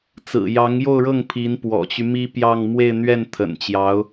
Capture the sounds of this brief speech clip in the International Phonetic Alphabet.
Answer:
t͡s ɹ̩˨˩ j ɑ˧˥ ŋ j o˥˧ ʊ̯ ɻ ɤ˥˩ ŋ pʰ i˧˥ n p w ɔ̰˨˩ t͡ɕ y˦ m i˥ p j ɑ˥˧ ŋ m w e˥˧ ɪ̯ n̪ ɥ ɛ˥˩ n t̪ʰ ə̰˨˩ n t͡ɕ j ɑ˧˥ ʊ̯

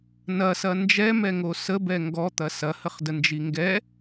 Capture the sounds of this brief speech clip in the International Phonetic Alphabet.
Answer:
n ɐ s ɐ n d͡ʒ ɛ m ɛ ŋ o s ə b ɛ ŋ ɡ ɔ t̪ ɐ s ɐ h ə χ d ə n d͡ʒ i ŋ ɡ ɛ

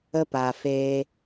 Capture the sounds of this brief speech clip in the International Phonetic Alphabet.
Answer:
ə˦ p a˨ f eː˧

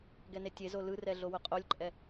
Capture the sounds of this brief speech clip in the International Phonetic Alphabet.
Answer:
ɡ ɛ n e tʲ e z o l ɯ r ɛ ɮ o w o qʼ o lʲ ǃʼ ɛ

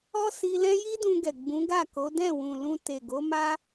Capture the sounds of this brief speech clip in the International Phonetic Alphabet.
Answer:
ɔ˦ s i˧ l ɛ̃˦ j i˦ d ũ˧ ɡ ɛ˨ ɡ͡b ũ˨˦ ɡ a˦˨ k o˨˦ d ɛ̃˦˨ w ũ˨ l ũ˧ t e˨ ɡ o˨˦ m a˦

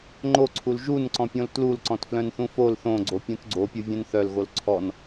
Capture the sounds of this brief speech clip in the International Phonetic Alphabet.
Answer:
ŋ͡ǃ o ǀʰ u l ʒ u n ǀ ɔ̃ pʲ õ l t l u l ǀ ɔ̃ t f l œ̃ n θ ũ f o l θ õ ɡ͡ǀ o pʲ ũ t ɡ͡ǀ o pʲ u vʲ œ̃ n θ œ l ɣ o l ǀʰ ɔ n

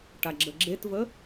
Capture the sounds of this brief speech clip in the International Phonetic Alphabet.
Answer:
ʈ a ɡ͡ǁ ə ɡ͡ǁ e t v ə

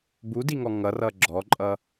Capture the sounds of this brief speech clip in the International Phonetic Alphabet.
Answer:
b u d i ŋ ɔ ŋ ʌ r ʌ ɡ͡ǁ ɔ ǃʼ ʌ

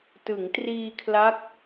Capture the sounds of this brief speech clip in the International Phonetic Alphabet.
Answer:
t ɯ˩˦ ŋ t r iː˧ kʰ l a˦˥ k̚

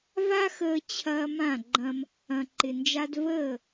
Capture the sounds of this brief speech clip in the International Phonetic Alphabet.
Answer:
v a˦ x əː˧ t͡ɕʰ ɐː˧ m ã˦˨ ɡ͡ǃ ɐ̃˧ m | ɐ̃˨ ǃ ɪ˨ n d͡ʒ a˧ d v əː˦˨

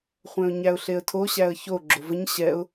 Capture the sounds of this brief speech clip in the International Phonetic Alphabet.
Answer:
χʷ ɛ̃ ʊ̯ ɲ æ ʊ̯ ɬ e ə̯ tʰ o ɕ æ ə̯ ç o ɡ͡ǁ o v ə ɲ ɕ ɛ ʊ̯

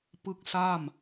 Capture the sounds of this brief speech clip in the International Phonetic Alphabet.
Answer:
p ɯ˦˥ k̚ s a˥˩ m

